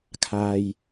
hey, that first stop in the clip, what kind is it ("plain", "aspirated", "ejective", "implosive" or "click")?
aspirated